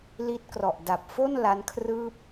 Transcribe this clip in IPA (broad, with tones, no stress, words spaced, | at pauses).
li˦˥t̚krɔ˨˩ʔda˨˩p̚ fo˥˩n la˦˥nkʰrɯː˥˩p̚